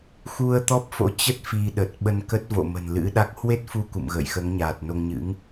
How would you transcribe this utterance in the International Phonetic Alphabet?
xu˧ə̯ t̪ɔ˦˥p̚fo̰˧˥t͡ɕə˦˥t̚ fi˧ɗə˨˩t̚ ɓə˧nkə˦˥t̚vo̰˧˨ mə̤˨˩nlɨ̰˧˥ɗa˦˥k̚ hwe˦˥t̚fu˧ kṵ˧˨mɣə̰ː˧˨jxəː˨˦ŋɲaː˨˩t̚ no˧ŋɲɨ̰˧˥ŋ

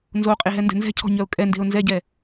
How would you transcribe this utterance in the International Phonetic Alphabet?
nzoqʼeɦɛndɛ̤ nzɛ̤cʰɔ̤ɲœʊ̯ kʼɛnde̤ʊ̯ nzɛɟɛ

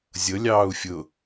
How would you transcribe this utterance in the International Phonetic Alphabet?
zʲɤ lʲɑːu̯fʲʊ

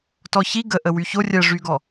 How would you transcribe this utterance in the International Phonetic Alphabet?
tɔçi ɡə ʔəwyço rʲɜʐyɡɔ

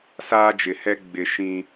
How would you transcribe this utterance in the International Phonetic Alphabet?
saː˦d͡ʒɪ˨hɛ˦ ɡ͡bɪ˨ ʃĩ˦

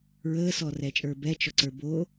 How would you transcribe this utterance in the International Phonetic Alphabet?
ɹəːsɔrɛt͡ʃʼə˞ bɛt͡ʃɔǀə˞ bo

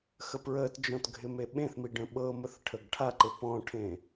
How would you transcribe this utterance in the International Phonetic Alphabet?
xəpɹəːtd͡ʒɔ̃t ɡʱɪmeɓẽθmi ɖə̃ɓɤməθ ʈʰəɡʈʰaǃɪ pɔ̃ʈʰẽː

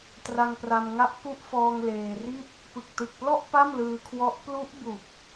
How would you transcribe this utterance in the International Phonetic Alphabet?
tra˧ŋpra˧mŋa˦˥ʔ ku˦˥ʔfɔː˧ŋ leː˧ri˥˩t̚ | pɯ˨˩k̚tɯ˨˩k̚plɔ˥˩ʔ pa˥˩mlɯː˧kʰwɔ˦˥ʔ plu˦˥ʔbu˨˩k̚

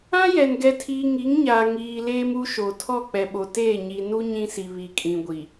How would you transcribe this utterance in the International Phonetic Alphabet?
ã˦jɛ˨n ɡɛ˨tʰiː˨ ŋi˨˦ŋɲaː˨ ŋiː˨ leː˦mu˦ʃo˨ tʰɔ˦˨k͡pɛ˨ɓo˨teː˦˨ ɲi˨nu˦ ɲĩ˦si˨βi˨kʼĩ˨ ɡʷi˨

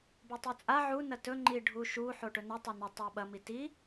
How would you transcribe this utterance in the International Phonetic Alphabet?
botˤɵt͡sʼa ʕu nɐtɵ ŋ͡ǃi ɖʱuʃu ħoʈɵnɐ tˤanə tˤaɓɐ miti

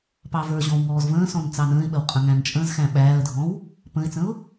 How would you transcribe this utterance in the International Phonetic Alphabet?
pɑ və˞ʑɔ̃w ŋɔːzvə̃ːsɔ̃n t͡sɑnə̃ːɪ̯ɓəw qʼə̃ŋæ̃nt͡ʃʼə̃zxæ̃ ɓæːə̯dʱɔ̃w | pə̃ɪ̯t͡sə̃ʊ̯

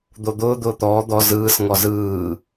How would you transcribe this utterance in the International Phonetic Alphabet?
d̪od̪ʊː d̪ʊːt̪ɔː d̪ɔ zɯːs ŋɔzɯː

